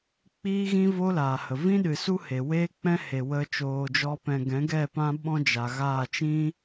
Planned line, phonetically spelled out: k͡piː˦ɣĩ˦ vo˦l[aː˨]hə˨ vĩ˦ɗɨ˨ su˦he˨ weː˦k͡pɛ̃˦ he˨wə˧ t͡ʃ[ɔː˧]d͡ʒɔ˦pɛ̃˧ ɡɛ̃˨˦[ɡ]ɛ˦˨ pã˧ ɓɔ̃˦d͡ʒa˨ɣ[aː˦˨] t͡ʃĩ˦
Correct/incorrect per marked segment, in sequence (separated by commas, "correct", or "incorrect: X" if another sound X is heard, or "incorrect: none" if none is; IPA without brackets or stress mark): correct, incorrect: oː˧, correct, correct